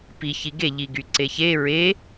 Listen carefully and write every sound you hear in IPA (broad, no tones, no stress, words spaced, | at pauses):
pi çiɡe ʎiɡyǀeçe ɹe